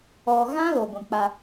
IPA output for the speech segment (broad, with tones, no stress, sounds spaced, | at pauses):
ɔ˨ ɣ ã˦ l o˨ ɡʷ ĩ˨ k͡p a˦